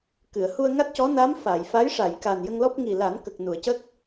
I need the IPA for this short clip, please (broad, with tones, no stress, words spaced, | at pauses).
kɨ˨˩˨ə̯ hu˧ə̯ŋa˦˥t̚cɔ˧˥ na˧˥mfa˨˩˨j fa˧˥jʂa˨˩˨j ka˨˩n jə˧ŋlɔ˦˥p̚ ŋi˨˩la˨˩˦nkə˨˩k̚ nu˨˩˨ə̯cə˦˥k̚